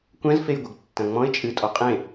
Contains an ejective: yes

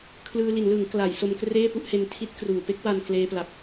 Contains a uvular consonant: no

